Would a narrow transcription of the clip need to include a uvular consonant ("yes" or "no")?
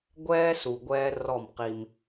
yes